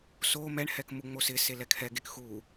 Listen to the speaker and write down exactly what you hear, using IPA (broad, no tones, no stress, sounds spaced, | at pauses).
s o m ɛ ɳ h ɛ k m u ŋ͡m o s ɪ s e l ɛ kʰ ɛ ɡ e k x u